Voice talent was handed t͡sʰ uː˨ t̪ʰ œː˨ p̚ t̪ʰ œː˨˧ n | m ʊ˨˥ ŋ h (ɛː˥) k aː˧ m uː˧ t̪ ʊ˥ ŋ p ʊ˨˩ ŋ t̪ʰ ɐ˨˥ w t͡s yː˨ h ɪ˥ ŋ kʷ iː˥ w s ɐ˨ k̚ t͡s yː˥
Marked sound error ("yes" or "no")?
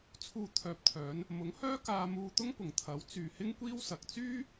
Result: yes